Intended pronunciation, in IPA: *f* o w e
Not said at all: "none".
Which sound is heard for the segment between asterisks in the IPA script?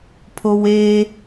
pʰ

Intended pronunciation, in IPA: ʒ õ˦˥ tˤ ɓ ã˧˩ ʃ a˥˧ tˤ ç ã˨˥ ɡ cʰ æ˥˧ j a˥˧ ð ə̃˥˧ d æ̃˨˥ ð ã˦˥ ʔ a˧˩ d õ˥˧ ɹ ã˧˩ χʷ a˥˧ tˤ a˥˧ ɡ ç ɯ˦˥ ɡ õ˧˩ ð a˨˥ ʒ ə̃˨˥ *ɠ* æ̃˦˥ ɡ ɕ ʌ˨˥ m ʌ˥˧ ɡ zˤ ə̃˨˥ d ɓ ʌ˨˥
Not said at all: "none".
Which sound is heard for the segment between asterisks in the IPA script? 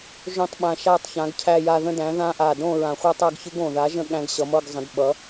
ɠ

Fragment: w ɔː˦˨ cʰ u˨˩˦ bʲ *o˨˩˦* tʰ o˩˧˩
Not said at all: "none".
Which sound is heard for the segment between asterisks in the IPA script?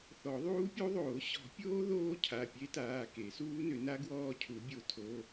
o˨˩˦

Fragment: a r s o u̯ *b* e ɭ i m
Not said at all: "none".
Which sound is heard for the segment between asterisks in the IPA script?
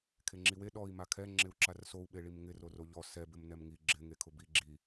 ɓ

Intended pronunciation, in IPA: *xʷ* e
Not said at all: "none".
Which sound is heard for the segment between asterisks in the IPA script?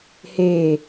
h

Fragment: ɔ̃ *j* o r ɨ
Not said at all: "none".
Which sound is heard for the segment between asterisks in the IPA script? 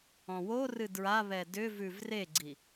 w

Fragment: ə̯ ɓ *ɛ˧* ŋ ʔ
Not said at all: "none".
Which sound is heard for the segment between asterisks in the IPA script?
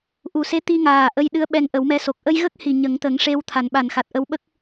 ɛ˧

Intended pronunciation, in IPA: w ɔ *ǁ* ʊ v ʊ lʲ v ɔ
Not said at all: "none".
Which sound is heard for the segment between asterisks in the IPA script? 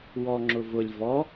ŋ͡ǁ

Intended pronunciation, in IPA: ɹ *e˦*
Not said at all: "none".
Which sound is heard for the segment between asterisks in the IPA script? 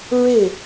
e˥˩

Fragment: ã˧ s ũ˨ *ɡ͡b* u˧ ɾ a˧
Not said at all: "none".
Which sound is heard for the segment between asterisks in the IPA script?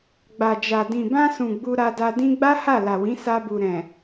ɡ͡b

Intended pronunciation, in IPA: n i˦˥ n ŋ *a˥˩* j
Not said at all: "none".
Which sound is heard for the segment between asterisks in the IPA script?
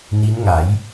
a˩˦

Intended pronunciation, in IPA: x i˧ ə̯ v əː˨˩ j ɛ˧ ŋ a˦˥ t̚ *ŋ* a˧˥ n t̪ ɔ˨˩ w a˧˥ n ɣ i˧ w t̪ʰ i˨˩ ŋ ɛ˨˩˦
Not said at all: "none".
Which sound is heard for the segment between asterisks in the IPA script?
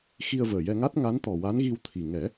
ŋ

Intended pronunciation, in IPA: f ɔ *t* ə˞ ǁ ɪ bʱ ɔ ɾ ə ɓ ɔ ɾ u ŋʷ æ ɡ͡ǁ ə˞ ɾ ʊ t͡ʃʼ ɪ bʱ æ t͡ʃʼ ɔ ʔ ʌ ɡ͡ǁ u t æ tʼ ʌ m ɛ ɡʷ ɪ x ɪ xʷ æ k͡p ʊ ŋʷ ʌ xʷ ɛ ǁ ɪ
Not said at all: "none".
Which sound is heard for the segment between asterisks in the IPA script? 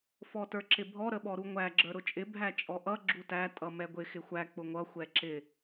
t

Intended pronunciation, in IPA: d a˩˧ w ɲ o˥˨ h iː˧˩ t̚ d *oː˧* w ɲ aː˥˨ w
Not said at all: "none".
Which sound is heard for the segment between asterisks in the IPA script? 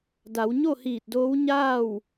oː˧˥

